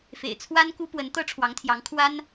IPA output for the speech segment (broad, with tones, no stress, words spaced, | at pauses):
fḛ˨˩ɪ̯t͡sʰwa˥nku˥ pwə˧˥nt̪ɤ˥ʈ͡ʂʰwɑ˧˥ŋt̪ʰjɑ˧˥ŋ kʰwa˥n